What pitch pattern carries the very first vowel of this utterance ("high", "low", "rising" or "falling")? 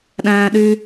low